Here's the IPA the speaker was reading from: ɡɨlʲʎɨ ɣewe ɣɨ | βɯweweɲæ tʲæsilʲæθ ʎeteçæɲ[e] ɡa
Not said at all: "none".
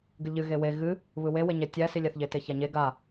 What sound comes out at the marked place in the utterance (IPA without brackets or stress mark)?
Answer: e